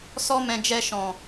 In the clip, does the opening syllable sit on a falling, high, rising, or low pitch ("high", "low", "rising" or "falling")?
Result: high